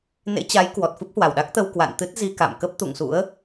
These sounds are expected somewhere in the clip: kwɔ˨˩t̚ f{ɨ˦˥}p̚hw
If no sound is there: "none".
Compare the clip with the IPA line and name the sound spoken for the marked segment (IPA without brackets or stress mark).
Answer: ɨ˦˥